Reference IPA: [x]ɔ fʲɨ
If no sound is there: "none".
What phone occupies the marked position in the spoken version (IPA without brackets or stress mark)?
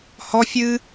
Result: h